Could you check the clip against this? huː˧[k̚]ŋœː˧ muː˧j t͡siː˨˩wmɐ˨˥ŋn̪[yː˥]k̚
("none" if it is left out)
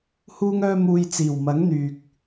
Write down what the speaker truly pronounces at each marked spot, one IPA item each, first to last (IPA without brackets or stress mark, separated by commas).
none, yː˨